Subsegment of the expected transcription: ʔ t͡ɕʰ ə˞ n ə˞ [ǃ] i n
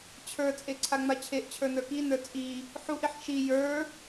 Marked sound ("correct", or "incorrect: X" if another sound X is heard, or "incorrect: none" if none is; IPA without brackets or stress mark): incorrect: k